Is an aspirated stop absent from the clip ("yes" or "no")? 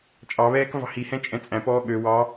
yes